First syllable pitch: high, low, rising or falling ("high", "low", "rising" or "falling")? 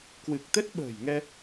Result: low